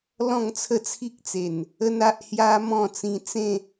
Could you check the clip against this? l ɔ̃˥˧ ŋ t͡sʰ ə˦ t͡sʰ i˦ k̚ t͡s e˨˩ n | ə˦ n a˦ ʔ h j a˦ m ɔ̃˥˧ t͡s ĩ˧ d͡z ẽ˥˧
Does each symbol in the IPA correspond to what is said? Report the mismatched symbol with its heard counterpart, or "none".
d͡z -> t͡s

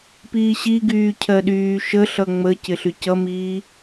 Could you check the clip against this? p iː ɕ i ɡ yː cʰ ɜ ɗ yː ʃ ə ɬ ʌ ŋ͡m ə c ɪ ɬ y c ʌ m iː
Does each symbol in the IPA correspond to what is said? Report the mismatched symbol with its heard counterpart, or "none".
none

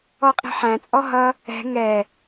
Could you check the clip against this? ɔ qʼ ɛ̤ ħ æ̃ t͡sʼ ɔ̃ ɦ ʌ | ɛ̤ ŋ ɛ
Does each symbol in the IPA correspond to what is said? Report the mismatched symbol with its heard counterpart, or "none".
ɔ̃ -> ɔ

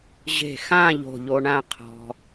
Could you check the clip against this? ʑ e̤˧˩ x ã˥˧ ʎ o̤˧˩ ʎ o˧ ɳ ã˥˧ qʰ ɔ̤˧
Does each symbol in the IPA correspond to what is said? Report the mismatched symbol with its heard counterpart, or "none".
none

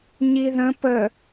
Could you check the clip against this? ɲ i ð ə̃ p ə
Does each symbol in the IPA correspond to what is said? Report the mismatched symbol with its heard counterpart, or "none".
none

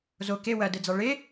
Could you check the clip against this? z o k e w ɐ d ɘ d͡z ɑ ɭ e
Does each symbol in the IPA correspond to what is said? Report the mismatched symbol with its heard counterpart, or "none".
none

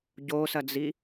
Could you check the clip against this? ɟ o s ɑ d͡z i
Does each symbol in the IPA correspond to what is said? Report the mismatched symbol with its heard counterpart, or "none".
ɑ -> ɐ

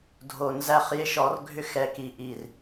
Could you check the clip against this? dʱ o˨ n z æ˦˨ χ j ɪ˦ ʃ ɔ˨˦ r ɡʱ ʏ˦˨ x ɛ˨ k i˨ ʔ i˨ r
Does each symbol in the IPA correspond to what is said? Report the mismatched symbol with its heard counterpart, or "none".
none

